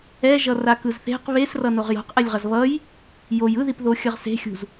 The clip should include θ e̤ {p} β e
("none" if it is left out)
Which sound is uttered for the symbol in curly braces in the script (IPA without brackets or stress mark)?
q